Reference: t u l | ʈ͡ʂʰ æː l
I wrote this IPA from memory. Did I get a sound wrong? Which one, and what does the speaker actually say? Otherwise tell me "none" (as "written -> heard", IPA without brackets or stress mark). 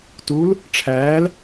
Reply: none